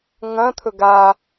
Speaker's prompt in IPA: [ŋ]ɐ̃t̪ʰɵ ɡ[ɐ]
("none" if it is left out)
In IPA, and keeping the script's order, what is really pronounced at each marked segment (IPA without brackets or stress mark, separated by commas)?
ŋ, a